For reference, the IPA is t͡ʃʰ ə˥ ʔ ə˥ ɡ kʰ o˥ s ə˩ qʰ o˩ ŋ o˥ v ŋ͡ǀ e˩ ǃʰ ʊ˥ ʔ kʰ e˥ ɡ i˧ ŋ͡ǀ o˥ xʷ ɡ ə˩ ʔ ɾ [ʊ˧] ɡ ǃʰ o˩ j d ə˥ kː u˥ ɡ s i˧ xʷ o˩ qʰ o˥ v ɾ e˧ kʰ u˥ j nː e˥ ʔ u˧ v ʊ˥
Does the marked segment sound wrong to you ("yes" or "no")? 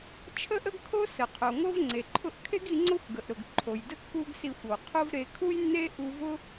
yes